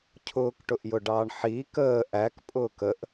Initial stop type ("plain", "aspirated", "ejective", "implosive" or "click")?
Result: aspirated